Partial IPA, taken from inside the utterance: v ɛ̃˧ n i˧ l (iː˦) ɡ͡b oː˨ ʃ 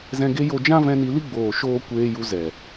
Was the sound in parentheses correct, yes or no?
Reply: no